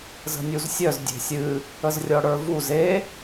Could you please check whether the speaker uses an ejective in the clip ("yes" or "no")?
no